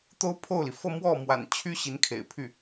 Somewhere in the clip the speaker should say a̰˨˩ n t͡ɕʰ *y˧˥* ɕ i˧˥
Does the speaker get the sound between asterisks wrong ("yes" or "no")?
yes